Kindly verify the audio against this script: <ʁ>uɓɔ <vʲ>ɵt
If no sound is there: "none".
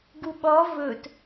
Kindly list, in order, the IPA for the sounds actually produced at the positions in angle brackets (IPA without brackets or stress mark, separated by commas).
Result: ɡ, v